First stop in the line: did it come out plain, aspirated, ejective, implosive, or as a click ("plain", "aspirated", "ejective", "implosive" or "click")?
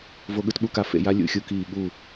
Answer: implosive